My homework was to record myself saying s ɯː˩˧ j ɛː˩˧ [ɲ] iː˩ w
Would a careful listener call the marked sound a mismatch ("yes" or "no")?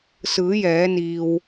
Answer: yes